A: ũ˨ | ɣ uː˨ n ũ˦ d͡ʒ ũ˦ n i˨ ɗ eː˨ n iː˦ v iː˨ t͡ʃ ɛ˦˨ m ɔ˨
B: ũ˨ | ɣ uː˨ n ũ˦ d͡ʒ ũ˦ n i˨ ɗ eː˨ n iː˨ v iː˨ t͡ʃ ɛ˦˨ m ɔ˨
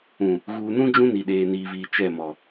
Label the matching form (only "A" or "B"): B